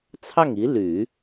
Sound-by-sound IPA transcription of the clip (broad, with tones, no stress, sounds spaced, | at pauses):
t͡sʰ ɑ˥˩ ŋ i˧˥ l y˨˩˦